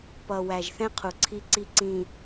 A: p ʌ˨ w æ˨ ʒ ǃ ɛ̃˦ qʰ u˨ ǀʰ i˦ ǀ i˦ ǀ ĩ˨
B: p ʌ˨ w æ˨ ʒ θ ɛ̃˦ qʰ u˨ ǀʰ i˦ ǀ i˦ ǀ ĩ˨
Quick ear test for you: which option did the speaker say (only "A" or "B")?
B